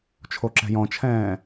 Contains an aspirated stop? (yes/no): yes